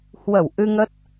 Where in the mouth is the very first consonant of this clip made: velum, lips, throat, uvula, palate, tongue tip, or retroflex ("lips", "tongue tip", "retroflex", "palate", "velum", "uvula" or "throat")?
throat